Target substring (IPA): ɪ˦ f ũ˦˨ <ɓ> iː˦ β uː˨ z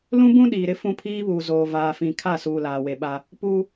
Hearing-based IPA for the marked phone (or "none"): pʰ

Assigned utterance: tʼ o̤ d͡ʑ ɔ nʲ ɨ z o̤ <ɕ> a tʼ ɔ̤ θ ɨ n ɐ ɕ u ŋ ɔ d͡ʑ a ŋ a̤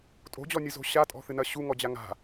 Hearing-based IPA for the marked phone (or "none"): ɕ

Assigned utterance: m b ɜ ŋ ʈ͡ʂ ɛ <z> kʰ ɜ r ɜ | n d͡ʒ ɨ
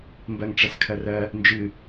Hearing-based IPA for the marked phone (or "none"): s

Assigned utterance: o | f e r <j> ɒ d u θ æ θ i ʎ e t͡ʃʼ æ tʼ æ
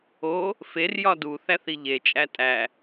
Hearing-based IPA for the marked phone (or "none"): j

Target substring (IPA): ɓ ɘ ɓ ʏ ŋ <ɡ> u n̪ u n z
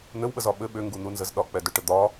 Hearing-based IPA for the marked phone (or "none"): ɡ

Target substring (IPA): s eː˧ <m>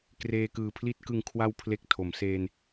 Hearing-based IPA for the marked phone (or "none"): n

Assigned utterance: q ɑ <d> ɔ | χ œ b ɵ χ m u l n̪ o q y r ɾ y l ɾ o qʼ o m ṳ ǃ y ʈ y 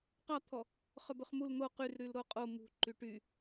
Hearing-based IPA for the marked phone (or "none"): t̪ʰ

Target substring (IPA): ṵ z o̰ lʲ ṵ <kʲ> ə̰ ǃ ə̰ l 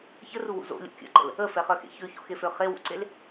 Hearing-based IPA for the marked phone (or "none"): kʲ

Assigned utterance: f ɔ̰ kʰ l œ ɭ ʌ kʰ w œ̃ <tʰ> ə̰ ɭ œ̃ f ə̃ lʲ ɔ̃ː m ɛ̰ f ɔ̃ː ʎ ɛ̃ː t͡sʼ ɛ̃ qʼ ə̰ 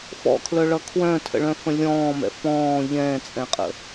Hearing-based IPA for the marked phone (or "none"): tʰ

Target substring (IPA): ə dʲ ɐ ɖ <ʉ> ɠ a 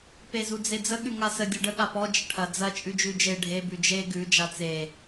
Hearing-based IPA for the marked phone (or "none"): ə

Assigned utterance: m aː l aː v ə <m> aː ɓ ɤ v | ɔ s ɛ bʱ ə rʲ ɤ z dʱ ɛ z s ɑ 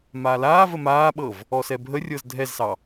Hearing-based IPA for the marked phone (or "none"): m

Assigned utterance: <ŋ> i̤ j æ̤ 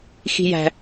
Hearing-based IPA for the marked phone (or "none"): x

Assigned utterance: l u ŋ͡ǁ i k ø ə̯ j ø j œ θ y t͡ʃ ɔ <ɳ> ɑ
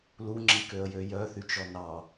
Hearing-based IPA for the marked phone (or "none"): n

